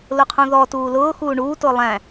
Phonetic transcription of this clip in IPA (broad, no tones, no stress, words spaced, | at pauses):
lʊqʰũðɔ tuːlʊː xuːɳuː tʊːlˠæ̃